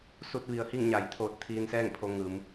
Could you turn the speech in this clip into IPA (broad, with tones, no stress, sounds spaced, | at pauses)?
s u˧ t̚ ʋ i˩ ə̯ h i˥˨ ŋ ɲ a˩ j t̪ʰ oː˧˩ t̚ t̪ʰ iː˧ n s ɛː˥˨ ŋ pʰ o˧ ŋ ɯː˩˧ m